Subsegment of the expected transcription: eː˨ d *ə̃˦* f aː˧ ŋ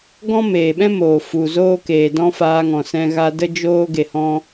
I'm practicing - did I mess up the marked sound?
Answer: yes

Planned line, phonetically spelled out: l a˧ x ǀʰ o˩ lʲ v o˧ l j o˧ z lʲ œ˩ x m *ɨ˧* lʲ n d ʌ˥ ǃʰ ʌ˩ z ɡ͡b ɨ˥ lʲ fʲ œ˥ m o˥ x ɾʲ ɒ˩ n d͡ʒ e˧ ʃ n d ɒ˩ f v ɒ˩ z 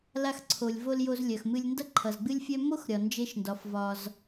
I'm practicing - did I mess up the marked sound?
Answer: no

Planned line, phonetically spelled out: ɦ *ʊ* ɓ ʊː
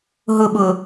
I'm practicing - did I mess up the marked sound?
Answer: no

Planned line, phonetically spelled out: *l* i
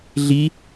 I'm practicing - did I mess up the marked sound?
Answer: yes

